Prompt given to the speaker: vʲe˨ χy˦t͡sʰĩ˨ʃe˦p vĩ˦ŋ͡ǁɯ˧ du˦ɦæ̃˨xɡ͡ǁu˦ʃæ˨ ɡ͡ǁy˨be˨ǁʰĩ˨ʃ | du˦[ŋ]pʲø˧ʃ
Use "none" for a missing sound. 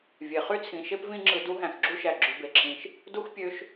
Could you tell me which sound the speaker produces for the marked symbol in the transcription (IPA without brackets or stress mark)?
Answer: x